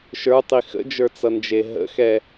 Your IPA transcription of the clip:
ʃ ə˞ tˤ i x ə̰ d͡ʒ ə˞ t͡s ʌ n d͡ʒ e ɦ ə̰ x ɛ

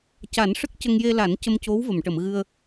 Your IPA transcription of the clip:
c a˨˩˦ n ʂ ə˦˥ k̚ c ə˧ ŋ j e˧ l a˨˩˦ n c ə˧ m c o˧˥ w v ə˨˩˨ m ʈ ə˨˩˨ m ɣ ɨ˧ ə̯

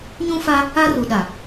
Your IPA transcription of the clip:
ɲ ũ˦ f a˦ | a˦ r u˨ ɗ a˨

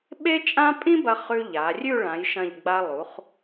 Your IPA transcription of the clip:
ɓ e˥ t͡ʃʼ ã˥ pʼ ĩ˥ b ɐ˧ χ ʉ˧ ʎ a˩˧ rʲ ʉ˥˧ ɭ ã˩˧ j ʃ ɐ̃˧˩ ʎ ɡ͡b a˧ lˠ u˩˧ χ

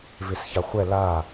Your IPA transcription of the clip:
v e s ç a χʷ ɛ l a

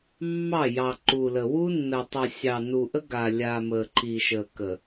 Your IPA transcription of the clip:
mː ɑ˦˨ j ɑ˨ ǃ u˨ l ə˨ w u˦ nː ə˨ tˤ ə˨ sʲ ɑ˨ n u˨ ʔ ə˦ ɡ a˨ lʲ a˨ m ə˨ ǃ i˨ ʃ ə˨ k ə˨

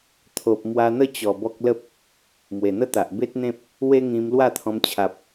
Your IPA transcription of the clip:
t̪ʰ o˨ p̚ m w a˧ n̪ ə˥˧ t͡ɕ ɔ˨˩ b ɔ˦ k̚ l ə˦ p̚ | m w e˨˩ n̪ ə˦ t̪ a˨ ʔ b e˦ t̚ n̪ ẽ˦ p̚ | w e˦ ŋ ĩ˧ m l w a˥˧ t̪ʰ ɔ̃˧ m t͡ɕʰ a˨ p̚

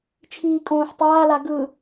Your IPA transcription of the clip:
t͡ʃʰ iː kʼ õː ħ tˤ aː l a ɡ ɯ

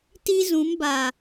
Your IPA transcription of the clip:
t i˦ z ũ˨˦ m b a˨

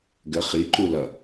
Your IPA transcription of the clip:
ɡ ə χ i ǃ u l ʌ

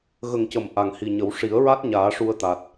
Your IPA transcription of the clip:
ɣ ə˨˩ ŋ c ə˨˩˨ m ʔ a˨˩ ŋ h i˨˩ ɲ ə˨˩˦ w ʂ i˨˩˦ ə̯ ɹ a˦˥ t̚ ɲ aː˨˩˦ ʂ u˧ ə̯ t̪ a˨˩ t̚

